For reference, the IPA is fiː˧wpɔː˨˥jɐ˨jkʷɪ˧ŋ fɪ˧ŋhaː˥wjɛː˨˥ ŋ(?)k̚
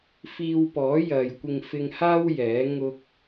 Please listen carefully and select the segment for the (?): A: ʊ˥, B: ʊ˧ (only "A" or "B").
A